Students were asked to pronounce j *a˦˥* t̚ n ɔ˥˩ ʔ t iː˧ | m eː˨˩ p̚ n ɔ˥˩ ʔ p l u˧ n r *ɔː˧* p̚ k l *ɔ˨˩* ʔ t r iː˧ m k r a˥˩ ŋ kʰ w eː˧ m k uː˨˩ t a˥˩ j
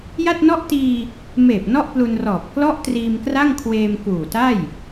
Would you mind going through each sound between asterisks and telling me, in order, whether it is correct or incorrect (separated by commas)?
incorrect, incorrect, incorrect